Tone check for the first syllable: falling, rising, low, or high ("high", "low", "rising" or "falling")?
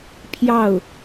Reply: falling